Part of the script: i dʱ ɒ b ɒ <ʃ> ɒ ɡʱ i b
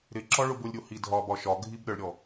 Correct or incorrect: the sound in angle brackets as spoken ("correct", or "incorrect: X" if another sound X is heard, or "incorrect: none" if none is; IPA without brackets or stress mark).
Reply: correct